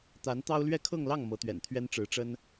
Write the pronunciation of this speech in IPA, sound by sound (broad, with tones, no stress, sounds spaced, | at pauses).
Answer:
t̪ a˧˥ n t̪ ɑ˥ ʊ̯ l ɥ ɛ˥˧ kʰ ɤ˥˧ ŋ l ɑ˥˩ ŋ m ɤ˧˥ t̪ ɥ ɛ̰˨˩ n t̪ʰ ɥ ɛ˥ n ʈ͡ʂ ɻ̩˧˥ ʈ͡ʂ ə˥ n